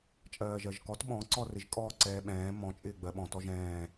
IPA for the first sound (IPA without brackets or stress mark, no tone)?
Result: t͡ʃʼ